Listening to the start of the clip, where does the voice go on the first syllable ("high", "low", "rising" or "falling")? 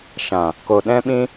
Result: low